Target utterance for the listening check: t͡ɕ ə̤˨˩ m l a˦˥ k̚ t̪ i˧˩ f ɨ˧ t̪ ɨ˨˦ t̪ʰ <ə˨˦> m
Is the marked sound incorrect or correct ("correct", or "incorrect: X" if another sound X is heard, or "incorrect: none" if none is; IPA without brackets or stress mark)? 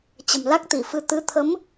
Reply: correct